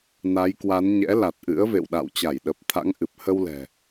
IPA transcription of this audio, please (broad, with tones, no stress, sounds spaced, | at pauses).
n a˨˦ j k w a˨˦ n ɲ ɛ̰˧˥ l a˨˩ t̚ ʔ ɨ̰˧˥ ə̯ v ḛ˧˨ w ɗ a̰˧˨ w t͡ɕ a˧˩ j ɗ ə˨˩ p̚ t̪ʰ a̰˧˥ ŋ ʔ ɨ˨˩ p̚ h ə˧ w l ɛ̤˨˩